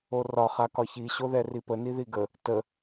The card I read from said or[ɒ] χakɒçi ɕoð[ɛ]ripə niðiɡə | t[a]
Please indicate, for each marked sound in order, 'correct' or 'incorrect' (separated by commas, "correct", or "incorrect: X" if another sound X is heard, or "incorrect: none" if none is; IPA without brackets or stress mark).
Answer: correct, correct, incorrect: ə